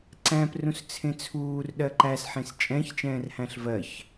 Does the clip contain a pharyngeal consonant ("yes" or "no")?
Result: yes